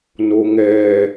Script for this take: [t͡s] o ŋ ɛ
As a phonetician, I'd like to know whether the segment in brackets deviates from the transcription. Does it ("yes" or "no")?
yes